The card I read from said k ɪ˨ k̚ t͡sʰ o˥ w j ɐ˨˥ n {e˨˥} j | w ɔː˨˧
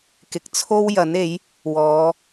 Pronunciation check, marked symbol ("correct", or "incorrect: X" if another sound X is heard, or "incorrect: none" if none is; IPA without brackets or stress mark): correct